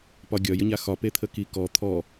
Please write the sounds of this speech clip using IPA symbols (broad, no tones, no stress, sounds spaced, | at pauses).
p ɒ ɡʲ ɒ j ə ɲ a x ɒ p e t̪ʰ ə k i k ɔ t̪ʰ ɔ